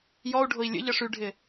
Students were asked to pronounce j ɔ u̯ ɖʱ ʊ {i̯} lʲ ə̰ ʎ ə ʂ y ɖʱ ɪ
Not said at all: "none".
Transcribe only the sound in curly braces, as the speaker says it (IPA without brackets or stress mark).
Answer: i̯